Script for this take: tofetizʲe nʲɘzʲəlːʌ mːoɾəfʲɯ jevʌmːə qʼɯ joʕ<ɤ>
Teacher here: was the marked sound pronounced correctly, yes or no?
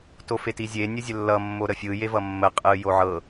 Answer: yes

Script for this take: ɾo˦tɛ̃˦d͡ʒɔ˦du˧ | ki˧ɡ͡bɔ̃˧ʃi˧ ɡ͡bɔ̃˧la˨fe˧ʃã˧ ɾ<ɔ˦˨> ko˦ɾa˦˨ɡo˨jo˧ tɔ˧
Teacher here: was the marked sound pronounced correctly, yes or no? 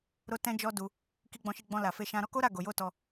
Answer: no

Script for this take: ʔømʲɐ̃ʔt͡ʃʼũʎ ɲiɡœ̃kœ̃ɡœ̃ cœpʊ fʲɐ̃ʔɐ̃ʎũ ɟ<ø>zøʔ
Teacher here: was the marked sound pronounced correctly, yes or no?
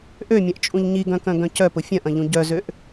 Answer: no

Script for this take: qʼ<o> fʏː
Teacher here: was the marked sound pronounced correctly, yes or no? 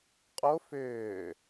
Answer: yes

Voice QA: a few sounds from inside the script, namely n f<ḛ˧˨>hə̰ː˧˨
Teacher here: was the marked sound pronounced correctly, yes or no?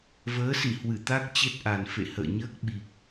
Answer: yes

